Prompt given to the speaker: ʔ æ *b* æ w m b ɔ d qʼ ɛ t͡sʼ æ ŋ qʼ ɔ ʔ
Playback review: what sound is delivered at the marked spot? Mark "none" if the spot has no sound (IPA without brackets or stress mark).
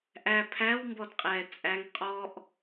pʰ